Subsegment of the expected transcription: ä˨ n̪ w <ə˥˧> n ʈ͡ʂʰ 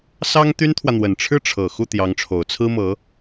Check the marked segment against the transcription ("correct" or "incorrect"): incorrect